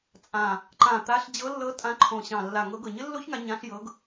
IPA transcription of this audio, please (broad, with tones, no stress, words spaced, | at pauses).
t͡sʼã˨˩ | ǃã˨˩t̪a˨˦ɬ d͡ʑɤ˨˦lːɤ˨˦ tʼã˨˦ǃʰõ˨˩ ɕɑ̃˨˩lːa˨˩ŋɤ˨˦ ɡɤ˨˩ɲɘ˦˥lːo˦˥çŋa˨˦ ɲã˨˦ɬjɤ˨˦ɡ